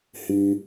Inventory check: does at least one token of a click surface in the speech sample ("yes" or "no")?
no